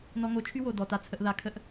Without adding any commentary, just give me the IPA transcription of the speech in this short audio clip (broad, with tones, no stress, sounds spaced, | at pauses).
n ɔ˨ ŋ o˨ t͡ʃʰ y˦ w o˨ d ɔ˨ t a˨ t͡sʰ ə˨ ʔ ð a˨ kʰ ə˨˦ ʔ